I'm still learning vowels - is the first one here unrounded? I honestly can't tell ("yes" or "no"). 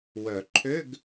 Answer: no